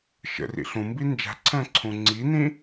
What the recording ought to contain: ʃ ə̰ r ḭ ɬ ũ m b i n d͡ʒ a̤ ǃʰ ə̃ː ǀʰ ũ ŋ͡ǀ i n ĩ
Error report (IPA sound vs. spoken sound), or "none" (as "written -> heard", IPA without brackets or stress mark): ǃʰ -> ǀʰ